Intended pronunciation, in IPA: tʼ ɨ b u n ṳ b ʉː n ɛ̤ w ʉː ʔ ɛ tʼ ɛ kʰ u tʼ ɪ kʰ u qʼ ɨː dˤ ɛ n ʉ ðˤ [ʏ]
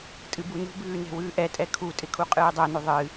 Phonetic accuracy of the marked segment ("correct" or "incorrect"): incorrect